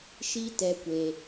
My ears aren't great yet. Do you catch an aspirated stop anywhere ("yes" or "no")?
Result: no